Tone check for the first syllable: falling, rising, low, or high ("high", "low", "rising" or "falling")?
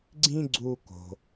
high